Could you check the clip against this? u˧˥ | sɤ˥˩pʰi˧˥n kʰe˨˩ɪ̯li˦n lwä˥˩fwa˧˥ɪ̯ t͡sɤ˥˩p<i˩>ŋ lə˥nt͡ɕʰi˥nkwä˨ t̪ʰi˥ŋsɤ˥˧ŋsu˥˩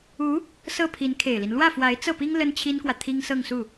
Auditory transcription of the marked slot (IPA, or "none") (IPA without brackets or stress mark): i˥